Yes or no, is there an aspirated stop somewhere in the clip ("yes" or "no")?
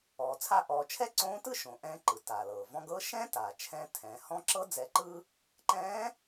yes